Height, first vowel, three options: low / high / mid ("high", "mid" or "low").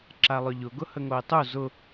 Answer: low